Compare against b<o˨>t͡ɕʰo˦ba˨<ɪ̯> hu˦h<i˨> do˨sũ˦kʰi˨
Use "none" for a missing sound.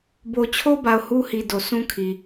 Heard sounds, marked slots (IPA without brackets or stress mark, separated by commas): o˨, ʊ̯, i˨